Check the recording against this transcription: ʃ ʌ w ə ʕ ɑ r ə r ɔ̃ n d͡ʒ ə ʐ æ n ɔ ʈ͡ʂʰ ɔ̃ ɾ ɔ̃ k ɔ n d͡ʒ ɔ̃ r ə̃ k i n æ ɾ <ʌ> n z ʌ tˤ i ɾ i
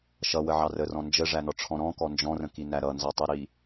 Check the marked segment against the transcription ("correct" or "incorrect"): correct